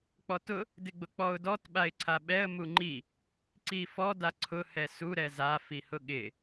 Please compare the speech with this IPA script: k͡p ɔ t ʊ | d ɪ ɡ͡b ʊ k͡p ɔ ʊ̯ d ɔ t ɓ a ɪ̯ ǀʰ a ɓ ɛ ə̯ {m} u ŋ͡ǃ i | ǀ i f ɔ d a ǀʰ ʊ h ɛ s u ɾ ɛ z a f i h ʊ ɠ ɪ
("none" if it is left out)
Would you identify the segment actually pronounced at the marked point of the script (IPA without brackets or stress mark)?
m